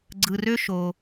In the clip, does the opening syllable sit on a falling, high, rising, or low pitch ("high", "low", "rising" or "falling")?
low